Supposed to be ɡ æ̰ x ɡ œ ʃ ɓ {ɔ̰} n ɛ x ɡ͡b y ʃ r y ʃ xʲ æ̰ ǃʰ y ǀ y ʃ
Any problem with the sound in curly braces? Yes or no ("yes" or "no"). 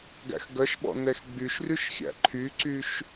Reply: no